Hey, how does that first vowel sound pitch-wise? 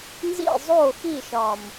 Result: falling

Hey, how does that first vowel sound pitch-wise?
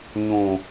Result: low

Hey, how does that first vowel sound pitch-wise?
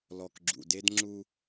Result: low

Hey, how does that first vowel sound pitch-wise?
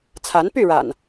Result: rising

